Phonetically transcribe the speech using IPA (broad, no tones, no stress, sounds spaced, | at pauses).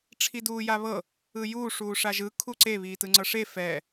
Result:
ʈ͡ʂʰ i d uː j a β ɤ | ɯ j uː ʂ uː ʂ a ʒ ɯ kʰ u ǀ e β iː t ɯ ŋ͡ǀ ɤ ʂ e f ɛː